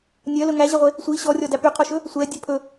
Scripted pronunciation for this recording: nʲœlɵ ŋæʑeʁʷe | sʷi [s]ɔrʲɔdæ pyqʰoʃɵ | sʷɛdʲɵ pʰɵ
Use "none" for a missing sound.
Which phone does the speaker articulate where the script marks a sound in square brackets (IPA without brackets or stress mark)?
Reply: ɕ